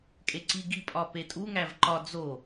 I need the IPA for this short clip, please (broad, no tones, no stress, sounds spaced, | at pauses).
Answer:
kʼ e ǀ i ɡ i pʼ ɒ p e tʼ u ŋ æ v ǃ ɒ d͡z o